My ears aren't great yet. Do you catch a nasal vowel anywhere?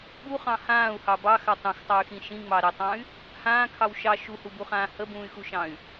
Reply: yes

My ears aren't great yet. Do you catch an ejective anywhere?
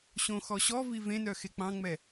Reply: no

